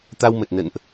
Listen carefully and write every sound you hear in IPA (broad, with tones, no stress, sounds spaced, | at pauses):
t̪ a˧ w m ə˨˩ t̚ n ə̰˧˨ n ʔ